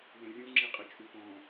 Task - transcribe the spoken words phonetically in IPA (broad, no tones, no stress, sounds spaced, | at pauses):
w ə̃ rʲ ũ ŋ͡ǁ i qʼ ɪ t͡ʃʼ u p ɔ̃